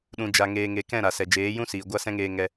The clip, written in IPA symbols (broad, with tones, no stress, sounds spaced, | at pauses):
ɗ ũ˨ d͡ʒ a˨ ŋ eː˨ ŋ e˨ k ɛ̃˦˨ ɾ a˨ s ɛ˨ d͡ʒ eː˨˦ j ũ˦ s iː˨ ɡʷ a˦ s ɛ̃˦ ŋ eː˧ ŋ ɛ˧